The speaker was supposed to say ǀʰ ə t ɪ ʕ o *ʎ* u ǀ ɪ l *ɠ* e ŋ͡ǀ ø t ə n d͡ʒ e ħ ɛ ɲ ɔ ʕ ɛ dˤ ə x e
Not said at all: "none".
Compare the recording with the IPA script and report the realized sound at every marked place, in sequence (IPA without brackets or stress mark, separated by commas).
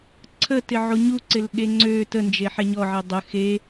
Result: ɲ, ɠ